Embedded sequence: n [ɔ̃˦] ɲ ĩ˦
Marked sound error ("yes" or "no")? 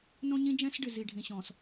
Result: yes